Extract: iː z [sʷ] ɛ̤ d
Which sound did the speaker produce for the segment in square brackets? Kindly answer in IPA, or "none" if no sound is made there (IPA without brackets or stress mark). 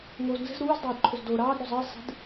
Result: sˤ